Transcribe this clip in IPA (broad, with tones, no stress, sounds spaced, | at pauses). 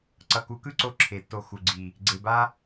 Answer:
ǀ ʌ˨ k u˨˦ k ɯ˦ ǀ o˧ ǁʰ e˨ tː o˧ x u˨ ɡ͡ǀ i˨ | ɡ͡ǀ e˨ b a˦